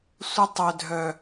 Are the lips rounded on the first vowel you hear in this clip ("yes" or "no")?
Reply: no